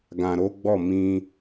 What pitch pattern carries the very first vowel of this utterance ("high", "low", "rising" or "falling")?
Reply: low